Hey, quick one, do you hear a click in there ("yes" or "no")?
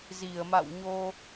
no